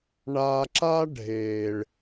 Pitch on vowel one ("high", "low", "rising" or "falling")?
low